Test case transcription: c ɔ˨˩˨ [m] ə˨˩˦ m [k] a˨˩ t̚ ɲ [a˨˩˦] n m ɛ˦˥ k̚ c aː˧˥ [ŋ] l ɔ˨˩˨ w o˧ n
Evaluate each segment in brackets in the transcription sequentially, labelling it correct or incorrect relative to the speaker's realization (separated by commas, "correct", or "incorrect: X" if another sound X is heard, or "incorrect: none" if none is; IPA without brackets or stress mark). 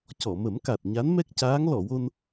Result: correct, correct, incorrect: a˧˥, correct